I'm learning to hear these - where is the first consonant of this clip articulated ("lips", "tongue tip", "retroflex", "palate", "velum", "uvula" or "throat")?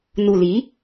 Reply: tongue tip